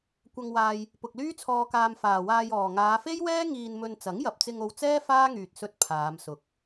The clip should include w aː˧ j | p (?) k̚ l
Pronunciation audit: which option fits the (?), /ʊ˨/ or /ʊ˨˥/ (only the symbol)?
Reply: ʊ˨